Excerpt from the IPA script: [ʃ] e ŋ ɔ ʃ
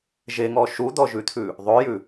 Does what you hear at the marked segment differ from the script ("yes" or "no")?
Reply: yes